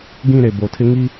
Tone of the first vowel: falling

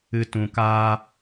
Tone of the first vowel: high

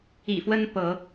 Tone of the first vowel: low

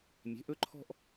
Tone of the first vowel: rising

